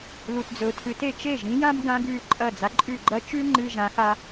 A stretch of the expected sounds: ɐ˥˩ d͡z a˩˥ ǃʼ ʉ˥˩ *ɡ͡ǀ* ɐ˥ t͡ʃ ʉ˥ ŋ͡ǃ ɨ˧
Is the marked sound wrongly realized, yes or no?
yes